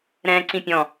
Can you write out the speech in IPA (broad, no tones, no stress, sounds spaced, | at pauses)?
ɾ ɛ̃ː ǀ ĩ pʲ ɔ̃